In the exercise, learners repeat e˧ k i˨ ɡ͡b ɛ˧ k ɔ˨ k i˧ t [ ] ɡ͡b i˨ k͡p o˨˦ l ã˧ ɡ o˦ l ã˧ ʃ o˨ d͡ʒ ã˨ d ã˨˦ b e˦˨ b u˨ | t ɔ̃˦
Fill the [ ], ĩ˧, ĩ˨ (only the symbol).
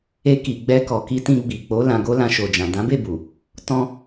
ĩ˧